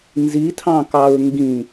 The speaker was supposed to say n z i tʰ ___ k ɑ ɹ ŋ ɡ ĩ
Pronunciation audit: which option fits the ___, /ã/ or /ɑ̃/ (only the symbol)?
ɑ̃